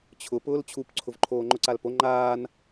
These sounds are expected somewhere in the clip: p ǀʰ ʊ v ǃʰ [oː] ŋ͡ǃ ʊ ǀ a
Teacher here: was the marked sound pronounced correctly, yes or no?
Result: yes